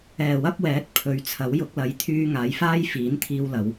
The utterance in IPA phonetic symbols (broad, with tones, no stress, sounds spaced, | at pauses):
ɛː˨˩ w ɐ˥ p̚ w ɛː˨˥ t̚ pʰ ɵ˨˥ ɥ t͡sʰ ɐ˨˥ w j ʊ˧ k̚ l ɐ˨˥ j t̪ʰ yː˧ ŋ aː˨˧ j f aː˥ j f iː˨˥ n t̪ʰ iː˧ w l ɐ˨˧ w